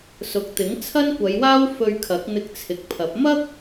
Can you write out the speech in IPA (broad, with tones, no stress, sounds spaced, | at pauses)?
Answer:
s ʊ˨ k̚ t̪ ɪ˨˥ ŋ t͡sʰ ɐ˥ n kʷ ɐ˨˧ j w aː˥ w f ɵ˧ ɥ kʰ ɐ˨˥ k̚ n̪ ɪ˧ k̚ t͡sʰ ɪ˨˥ k̚ pʰ ɐ˨˥ p̚ m ɐ˥ k̚